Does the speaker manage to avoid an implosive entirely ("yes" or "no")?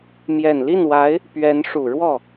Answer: yes